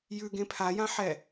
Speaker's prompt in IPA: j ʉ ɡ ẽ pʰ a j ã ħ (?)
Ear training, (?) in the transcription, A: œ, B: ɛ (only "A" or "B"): B